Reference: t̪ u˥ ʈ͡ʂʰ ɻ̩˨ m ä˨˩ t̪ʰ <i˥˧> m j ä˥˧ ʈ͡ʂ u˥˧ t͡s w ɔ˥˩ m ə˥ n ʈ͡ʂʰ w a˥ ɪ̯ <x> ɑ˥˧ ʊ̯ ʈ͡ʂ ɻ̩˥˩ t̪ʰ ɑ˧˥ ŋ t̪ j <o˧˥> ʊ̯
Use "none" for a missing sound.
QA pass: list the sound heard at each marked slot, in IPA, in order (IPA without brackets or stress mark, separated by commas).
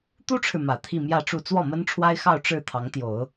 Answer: i˥˧, x, o˨˩˦